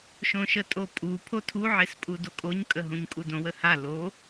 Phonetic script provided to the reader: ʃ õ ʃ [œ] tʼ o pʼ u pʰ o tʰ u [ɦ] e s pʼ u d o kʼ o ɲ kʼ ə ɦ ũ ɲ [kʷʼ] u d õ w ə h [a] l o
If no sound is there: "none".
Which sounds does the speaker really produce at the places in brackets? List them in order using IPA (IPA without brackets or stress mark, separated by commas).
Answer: ə, ʕ, kʼ, a